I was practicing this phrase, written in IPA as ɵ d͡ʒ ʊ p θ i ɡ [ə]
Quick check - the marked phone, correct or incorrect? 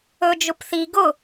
incorrect